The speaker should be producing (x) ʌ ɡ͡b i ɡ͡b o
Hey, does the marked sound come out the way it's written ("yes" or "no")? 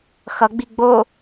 yes